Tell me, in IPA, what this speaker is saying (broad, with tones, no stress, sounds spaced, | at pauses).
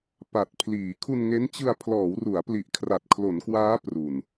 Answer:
p a˨˩ t̚ pʰ l iː˩˦ kʰ u˧ n ŋ e˦˥ n t͡ɕ ɯ˧ a̯ pʰ l ɔː˩˦ w r u˩˦ a̯ p l i˨˩ ʔ kʰ r a˨˩ t̚ kʰ l o˩˦ n k w aː˦˥ p r u˨˩ n